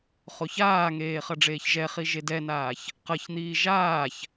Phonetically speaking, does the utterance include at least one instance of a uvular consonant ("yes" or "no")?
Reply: yes